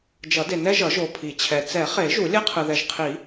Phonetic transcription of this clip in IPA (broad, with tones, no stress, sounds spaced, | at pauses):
d͡ʒ ʌ˨˩˦ d e˨ n ɛ˦ ʒ ʌ˨˩˦ ʒ o˨ pʰ i˨˩˦ t͡ɕʰ ɛ˨ t͡s ɛ˨˩˦ χ e˨˩˦ ʒ u˨˩˦ lʲ ɛ˦ qʰ ɯ˨ ð ɛ˨ ʒ qʰ i˨˩˦